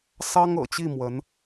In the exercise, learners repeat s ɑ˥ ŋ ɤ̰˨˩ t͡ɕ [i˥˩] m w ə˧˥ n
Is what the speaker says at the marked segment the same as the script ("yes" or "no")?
yes